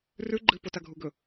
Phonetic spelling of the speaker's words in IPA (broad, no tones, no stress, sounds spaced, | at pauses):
r ʉ ɡ͡ǃ ɨ p o t a ɡʱ u ɡ ɵ